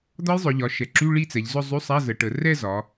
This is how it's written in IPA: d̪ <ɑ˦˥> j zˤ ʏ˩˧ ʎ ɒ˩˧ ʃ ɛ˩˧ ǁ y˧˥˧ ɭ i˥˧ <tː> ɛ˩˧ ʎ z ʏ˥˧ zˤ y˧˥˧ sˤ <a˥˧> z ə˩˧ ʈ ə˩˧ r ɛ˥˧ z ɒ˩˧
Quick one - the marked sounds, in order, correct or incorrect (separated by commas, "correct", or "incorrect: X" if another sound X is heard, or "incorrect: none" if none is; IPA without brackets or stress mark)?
incorrect: ɒ˦˥, incorrect: t͡s, incorrect: a˧˥˧